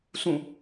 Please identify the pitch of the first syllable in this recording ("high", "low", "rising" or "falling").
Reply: falling